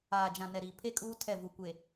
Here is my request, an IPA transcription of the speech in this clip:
aː˨ d͡ʒ ã˨ n ɛ˨ ɾ iː˨ pʰ e˦ kʼ uː˦ tʰ ɛ˦˨ v u˨ kʷ e˨

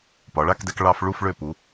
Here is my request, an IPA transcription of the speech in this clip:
p ɒ˩˧ ɭ a˥˧ k d ɛ˧ k ɭ ɑ˧ f ɭ u˥˧ f ɭ ø˧˩ p u˩˧

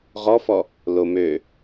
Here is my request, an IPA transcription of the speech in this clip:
ʁ ɔ f ɔ | l o m ø

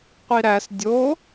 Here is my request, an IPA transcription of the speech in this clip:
qʷ i ɾ æ s dʲ o

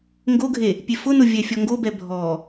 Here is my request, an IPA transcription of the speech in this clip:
ŋ ɡ o ɡʱ e | pʲ e f ʊ n o vʲ ɛ fʲ ɔ ŋ ɡ o b ɛ bʱ ɔ

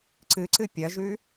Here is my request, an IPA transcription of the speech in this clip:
ǀ ɨ ǀ ɨ pʲ ɐ ʒ ʉ

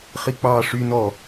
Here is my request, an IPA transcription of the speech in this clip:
χ i k͡p ɑː ʂ y n ɔ

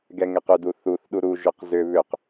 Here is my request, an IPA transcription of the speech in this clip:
ɡ ɛ ŋ ɛ q ʏ d u θ u θ ɗ u ɾ u ʒ ʊ q z ʏ β ʏ q

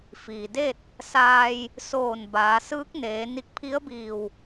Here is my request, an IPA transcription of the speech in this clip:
f iː˩ d e˥˨ t̚ | s aː˧ j | s oː˧˩ n b aː˩˧ s ɯː˧˥ k̚ n eː˩˧ n i˧˩ k̚ pʰ i˧˥ ə̯ b iː˧˩ w

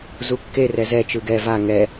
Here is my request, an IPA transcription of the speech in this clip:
z u kː e r ɛ z ɛ t͡ʃ ɯ ɡ ɛ v a ŋ ɛ

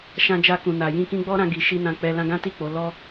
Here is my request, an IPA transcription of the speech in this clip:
ʃ ã˧ d͡ʒ a˧ k ũ˨ n a˨ j ĩ˧ k ĩ˧ ɡ͡b ɔ˦ ɾ ã˧ ɡ i˨ ʃ i˧ n ã˨ k͡p ɛ˨ l ã˧ ɡ ã˦ t i˦˨ k͡p o˨˦ l ɔ˧

